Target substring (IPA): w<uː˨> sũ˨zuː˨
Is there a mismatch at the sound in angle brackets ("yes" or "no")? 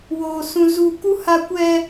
yes